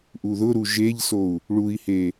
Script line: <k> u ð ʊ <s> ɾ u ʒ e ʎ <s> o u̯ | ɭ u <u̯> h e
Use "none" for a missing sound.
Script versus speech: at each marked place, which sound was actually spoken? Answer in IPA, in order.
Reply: ʔ, none, s, i̯

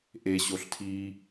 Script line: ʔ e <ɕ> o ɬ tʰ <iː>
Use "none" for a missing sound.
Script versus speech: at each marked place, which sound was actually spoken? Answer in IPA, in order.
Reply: ɕ, iː

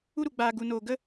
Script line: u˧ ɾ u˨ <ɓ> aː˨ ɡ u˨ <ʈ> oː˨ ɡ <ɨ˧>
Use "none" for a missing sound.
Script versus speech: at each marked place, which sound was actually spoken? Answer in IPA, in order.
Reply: ɡ͡b, n, ə˧

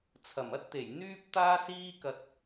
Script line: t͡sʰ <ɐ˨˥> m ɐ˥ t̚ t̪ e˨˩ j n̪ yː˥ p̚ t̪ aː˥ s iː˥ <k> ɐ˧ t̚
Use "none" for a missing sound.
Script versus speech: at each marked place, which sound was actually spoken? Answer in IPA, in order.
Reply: ɐ˨˩, k

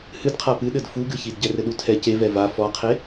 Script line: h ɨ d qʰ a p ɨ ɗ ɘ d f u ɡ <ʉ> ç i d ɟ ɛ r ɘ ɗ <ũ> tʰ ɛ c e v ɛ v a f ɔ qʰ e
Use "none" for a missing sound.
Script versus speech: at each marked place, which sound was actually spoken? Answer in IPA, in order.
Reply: ɨ, u

